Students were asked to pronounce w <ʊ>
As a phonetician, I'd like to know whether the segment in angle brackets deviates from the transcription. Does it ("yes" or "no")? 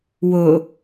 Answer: no